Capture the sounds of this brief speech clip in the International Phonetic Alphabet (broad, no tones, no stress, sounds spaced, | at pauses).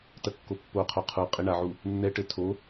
t ɐ kː o pː o qʰ o qʰ u qʼ e ɳ a ʕ u | nː ɛ ʈ ɘ tʰ o